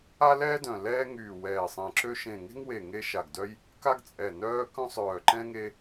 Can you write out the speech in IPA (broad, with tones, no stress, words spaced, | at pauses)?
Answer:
a˦lɛː˦dœ̃˨˩ lɛː˦ ŋyː˨˩ wɛː˨˩sˤẽ˨˩ǁø˦ ʃẽ˨˩ŋe̤˦ŋwe˨˩ ŋe˦ʃa˨˩ɡdœ˦j | ka˦ɡt͡sʼɛ˨˩ nœː˦kœ̃˦sˤœː˨˩ǃɛ̃˦ ŋe˦